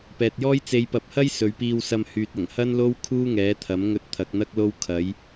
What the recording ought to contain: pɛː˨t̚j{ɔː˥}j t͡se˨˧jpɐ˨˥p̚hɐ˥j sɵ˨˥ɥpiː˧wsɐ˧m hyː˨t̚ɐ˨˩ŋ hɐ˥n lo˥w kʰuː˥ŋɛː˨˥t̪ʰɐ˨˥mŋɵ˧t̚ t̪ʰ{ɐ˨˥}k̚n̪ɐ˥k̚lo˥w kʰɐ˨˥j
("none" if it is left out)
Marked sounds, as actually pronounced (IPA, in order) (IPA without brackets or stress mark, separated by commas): ɔː˥, ɐ˨˥